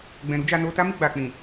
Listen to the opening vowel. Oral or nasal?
nasal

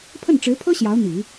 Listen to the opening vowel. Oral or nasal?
oral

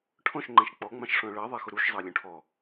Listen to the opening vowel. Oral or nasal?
nasal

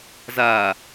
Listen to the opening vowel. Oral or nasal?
oral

